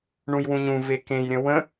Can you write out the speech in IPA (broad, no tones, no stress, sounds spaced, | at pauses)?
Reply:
ɳ ũ j w ũ ɲ ũ v e k ẽ j ɾʲ ə̃ w ə̃